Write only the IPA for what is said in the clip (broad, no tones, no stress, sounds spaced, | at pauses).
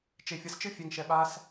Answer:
t͡ʃ e fʲ ʌ s t͡ʃ ɯ fʲ ɛ ŋ ʃ ɛ ɓ a s